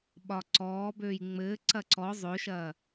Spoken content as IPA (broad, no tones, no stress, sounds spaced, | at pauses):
ɓ ɒ ǀ ɔː b øː j ŋ͡m ɘː ǀ ɐ ǀ ɔ zˤ ø ʃ ɐː